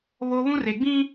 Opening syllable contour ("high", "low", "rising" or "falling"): high